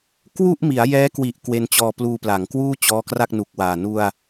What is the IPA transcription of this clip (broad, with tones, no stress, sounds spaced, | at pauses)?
k w u˥˩ ʔ m i˩˦ a̯ j ɛː˦˥ k w i˨˩ ʔ k w e˧ n t͡ɕ ɔː˧ p l uː˧ p l a˩˦ ŋ k w uː˥˩ t͡ɕ ɔː˦˥ k r a˥˩ k̚ n u˨˩ k̚ w aː˨˩ n u˧ a̯